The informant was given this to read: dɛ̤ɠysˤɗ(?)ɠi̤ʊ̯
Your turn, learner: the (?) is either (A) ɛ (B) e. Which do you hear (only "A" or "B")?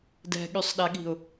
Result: A